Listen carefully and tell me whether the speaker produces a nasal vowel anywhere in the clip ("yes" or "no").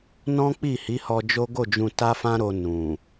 yes